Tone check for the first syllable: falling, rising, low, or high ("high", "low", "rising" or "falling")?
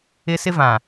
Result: high